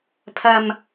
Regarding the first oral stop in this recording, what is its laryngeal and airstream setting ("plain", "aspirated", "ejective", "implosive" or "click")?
aspirated